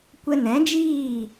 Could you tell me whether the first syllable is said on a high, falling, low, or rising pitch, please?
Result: high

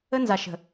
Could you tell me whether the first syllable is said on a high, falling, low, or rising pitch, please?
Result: high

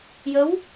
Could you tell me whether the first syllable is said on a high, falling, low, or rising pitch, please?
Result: rising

